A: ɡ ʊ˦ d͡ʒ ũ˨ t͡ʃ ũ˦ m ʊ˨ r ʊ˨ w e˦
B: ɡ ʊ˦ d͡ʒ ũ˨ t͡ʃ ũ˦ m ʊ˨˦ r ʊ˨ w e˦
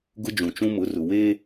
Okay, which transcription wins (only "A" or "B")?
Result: B